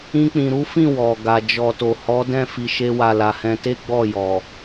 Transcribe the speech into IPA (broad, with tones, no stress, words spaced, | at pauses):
ĩ˧k͡pĩ˨ɾu˨˦fĩ˦˨ wɔ˨ɡa˨ d͡ʒɔ˨to˨hɔ˨˦ dɛ̃˦˨fi˨ʃe˧wa˨ la˨hɛ̃˧te˦ ɡ͡bɔ˦˨jɔ˨